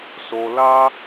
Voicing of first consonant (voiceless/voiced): voiceless